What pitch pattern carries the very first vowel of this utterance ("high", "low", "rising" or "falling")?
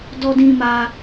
high